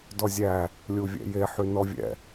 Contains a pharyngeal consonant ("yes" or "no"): yes